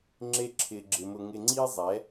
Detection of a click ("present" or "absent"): present